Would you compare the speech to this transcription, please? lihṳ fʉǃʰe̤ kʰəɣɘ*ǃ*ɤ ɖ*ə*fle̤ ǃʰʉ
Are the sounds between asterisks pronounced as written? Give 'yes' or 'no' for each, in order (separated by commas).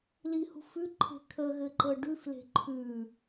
yes, no